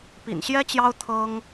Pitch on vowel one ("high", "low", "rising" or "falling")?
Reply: low